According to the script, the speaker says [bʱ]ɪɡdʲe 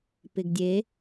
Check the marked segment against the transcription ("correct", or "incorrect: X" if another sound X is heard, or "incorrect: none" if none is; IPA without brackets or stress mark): incorrect: p